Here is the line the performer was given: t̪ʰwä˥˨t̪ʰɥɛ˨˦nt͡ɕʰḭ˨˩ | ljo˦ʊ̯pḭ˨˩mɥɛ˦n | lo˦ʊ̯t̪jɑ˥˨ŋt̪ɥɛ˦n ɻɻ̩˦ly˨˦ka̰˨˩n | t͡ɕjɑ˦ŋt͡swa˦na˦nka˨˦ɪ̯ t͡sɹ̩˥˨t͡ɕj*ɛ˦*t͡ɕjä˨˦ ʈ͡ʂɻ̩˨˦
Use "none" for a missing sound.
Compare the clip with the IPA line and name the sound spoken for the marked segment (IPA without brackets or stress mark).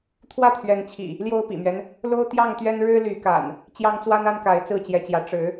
ɛ˨˦